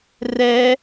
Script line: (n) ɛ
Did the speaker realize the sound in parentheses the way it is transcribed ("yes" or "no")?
no